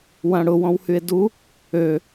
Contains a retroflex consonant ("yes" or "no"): yes